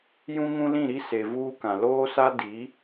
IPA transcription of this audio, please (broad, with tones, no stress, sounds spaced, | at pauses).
j ũ˦ ŋ ũ˦ l ĩ˦˨ ɾ i˦ s e˨ v uː˦ k ã˨ l oː˦ s a˦ d i˨˦